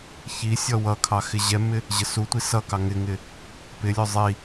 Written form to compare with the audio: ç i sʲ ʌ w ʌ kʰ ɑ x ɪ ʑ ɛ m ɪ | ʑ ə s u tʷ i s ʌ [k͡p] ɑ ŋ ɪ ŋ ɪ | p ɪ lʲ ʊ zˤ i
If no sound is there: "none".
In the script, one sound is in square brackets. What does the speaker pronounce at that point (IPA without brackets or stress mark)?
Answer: k